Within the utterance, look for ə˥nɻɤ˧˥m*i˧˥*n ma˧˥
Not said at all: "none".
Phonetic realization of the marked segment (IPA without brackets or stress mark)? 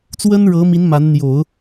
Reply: i˧˥